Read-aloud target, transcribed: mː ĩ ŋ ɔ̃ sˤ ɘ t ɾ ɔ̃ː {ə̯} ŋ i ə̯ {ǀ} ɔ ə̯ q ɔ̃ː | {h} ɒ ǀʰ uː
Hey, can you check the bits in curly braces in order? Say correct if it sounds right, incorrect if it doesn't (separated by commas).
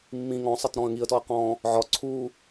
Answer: correct, incorrect, incorrect